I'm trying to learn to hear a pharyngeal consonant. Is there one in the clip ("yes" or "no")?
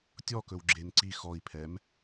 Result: no